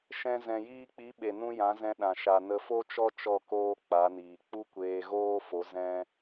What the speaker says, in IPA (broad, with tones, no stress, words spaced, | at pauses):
ʃɛ̃˧ zɛ̃˨jiː˧k͡pi˨˦ ɓe˨nũ˧ jã˨˦zɛ̃˧ɗã˨ ʃa˨ nə˧fo˦t͡ʃɔ˦ t͡ʃɔ˦˨koː˦k͡pa˨˦niː˨ k͡pu˦kʷeː˧ɣoː˦fo˨˦ zɛ̃˦